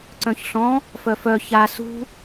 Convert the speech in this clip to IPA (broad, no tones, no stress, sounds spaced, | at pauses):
ǀ œ̃ ç ɬ ɔ̃ | f œ f œ ç a s ṳ